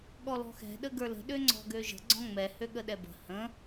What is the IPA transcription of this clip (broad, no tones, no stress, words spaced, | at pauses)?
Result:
ɠɔlɔ̤xɛ̤ ɗəɡə˞lə̤ ɗøŋ͡ǀɔ̤ɡøʒə̤ ɡ͡ǀɔ̃ŋ͡mɛ høɠəɗɛbə̤ hə̃